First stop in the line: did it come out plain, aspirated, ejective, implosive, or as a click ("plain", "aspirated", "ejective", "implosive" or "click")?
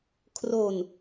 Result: aspirated